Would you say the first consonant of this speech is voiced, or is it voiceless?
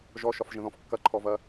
voiced